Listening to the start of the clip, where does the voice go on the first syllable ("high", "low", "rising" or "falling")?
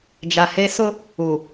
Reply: low